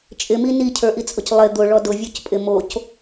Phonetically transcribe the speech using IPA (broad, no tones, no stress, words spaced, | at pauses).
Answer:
t͡ʃʼɪmi nicʰə˞ʔit͡sʼʊc lˠɪ d̪ʊɭɔ dʊvʲocpʼɪ moc